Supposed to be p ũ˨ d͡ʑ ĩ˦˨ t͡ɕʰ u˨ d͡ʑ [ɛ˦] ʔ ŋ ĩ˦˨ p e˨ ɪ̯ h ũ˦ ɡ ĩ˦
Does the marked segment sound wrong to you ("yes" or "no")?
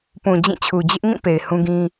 yes